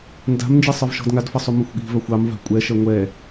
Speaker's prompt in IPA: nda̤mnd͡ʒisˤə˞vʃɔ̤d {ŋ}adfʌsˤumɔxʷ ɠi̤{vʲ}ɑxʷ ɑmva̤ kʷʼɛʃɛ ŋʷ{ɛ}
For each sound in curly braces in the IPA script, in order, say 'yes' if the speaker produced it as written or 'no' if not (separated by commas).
yes, no, yes